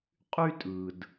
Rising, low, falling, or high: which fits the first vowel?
high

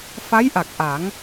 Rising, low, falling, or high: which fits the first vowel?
rising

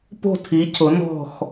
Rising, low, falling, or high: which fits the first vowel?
falling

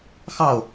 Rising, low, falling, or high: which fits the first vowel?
falling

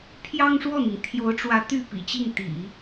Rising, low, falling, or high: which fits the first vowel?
high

